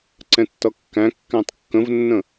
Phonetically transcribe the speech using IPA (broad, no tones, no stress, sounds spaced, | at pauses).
ǀ ɛ̃ tː ʌ kː æ̃ kː æ̃ tˤ kː ə̃ v nː ə̃